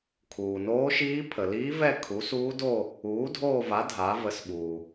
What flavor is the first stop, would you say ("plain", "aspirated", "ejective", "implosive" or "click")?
aspirated